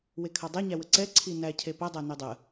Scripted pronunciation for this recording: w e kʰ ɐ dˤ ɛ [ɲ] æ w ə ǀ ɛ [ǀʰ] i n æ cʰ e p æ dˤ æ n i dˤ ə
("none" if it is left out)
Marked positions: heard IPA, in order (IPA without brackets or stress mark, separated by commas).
ɲ, ǀʰ